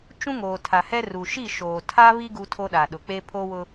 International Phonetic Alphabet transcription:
t͡ʃũ˦ŋoː˨ tʰa˨hɛ˦ru˨ ʃi˦˨ʃoː˨tʰa˦βi˦ ɡu˦tʰo˦ɗa˨ɗʊ˨ k͡pe˦ pʰo˦wʊ˦

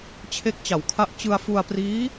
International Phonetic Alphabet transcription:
t͡ɕʰe˦˥k̚t͡ɕa˨˩wkʰa˦˥ʔ t͡ɕɯ˧a̯fu˧a̯priː˦˥

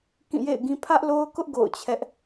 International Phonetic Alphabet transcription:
kĩ˦˨jḛ˦˨ɪ̯ɡĩ˦ pʰä˦ʔlo˦ʊ̯kʊ˦ʔ ɡo̰˦˨ʊ̯t͡ɕʰɛ˦ʔ

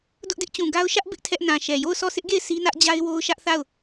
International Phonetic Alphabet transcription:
dʊ˦ʔdɪ˦ʔt͡ɕũ˨ ɡa˦ʊ̯ ʃä˦ʔ bɪ˦ʔtʰɛ˦ʔ nã˨ʃɛ˨ jo˦˨ʊ̯sɔ˦˨sɪ˦ʔɡe˦˨ɪ̯ sʰi˦nä˦ʔd͡ʑa˦ɪ̯ wo˦ʊ̯ ʃä˦ʔθa˦˨ʊ̯

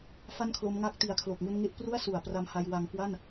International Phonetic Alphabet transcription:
fa˥˩nkʰlo˦˥mŋa˥˩k̚ ti˨˩a̯kʰlo˨˩k̚ŋu˧n ŋe˦˥ʔpru˥˩a̯su˨˩a̯ pra˧mha˧j wa˧ŋkwa˥˩n

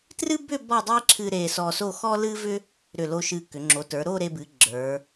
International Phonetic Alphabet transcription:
trɨ˥bʏ˥˧ bɔ˥˧dˤe˥ǁʰɨ˧ ɾe˧sɔ˧so˥˧ xɔ˥lɨ˥vʏ˥ | ɾʏ˧˩lo˧ʃɨ˧˩kʏ˩˧ ŋ͡ǁo˩˧tə˞˩˧ ɾo˥˧ɾe˧bɨ˩˧ ɡ͡ǁə˞˩˧

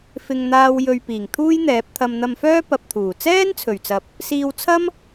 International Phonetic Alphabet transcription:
fɪ˧ŋn̪aː˧w jɵ˨ɥ piː˨˩ŋt̪ʰuː˥jn̪ɛː˨˥p̚ t̪ʰɐ˧mn̪ɐ˧mfœː˥ pɐ˧p̚t̪ʰuː˨˩ t͡sɛː˥nt͡sʰɵ˨˩ɥt͡sɐ˨˥p̚ | siː˧wt͡sʰɐ˥m

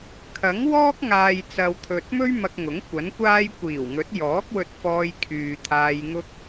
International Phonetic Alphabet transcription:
kʰɐ˨˥ŋwɔː˥k̚ŋaː˨j t͡sɐ˨wt̪ʰɵ˨t̚mɵ˥ɥ mɐ˧k̚ŋʊ˨˥ŋ kʷɐ˨˥nkʷaː˥j kʷiː˨˩wŋɵ˨˥t̚jɔː˨˥k̚ wɵ˧t̚fɔː˧jkʰyː˨ t̪ʰaː˧jŋʊ˥k̚

